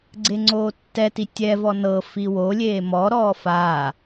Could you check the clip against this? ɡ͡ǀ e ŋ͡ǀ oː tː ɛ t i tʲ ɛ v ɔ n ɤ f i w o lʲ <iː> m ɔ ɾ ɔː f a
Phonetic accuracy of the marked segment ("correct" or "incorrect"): incorrect